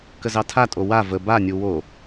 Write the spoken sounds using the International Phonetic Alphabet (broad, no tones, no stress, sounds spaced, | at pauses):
k ə z ɑ tʰ a tʼ o w a v ə b a nʲ u w o